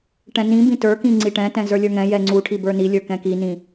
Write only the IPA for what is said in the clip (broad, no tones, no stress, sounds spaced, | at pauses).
ʈ ɛ̃ n ĩ b ĩ t ə˞ k ĩ ŋ͡ǀ i ʈ ɛ̃ t ɛ̃ z ə˞ lʲ ə˞ ŋ ɛ̃ j ɛ ŋ͡ǀ u ʈʰ i b ə˞ n i lʲ ə˞ k ɛ̃ k i n ĩ